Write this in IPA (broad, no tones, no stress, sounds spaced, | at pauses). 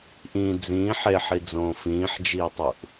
ʔ ĩ d͡z ĩː ħ e ħ i d͡z õː f ĩː ħ d͡ʒ iː tˤ u ʔ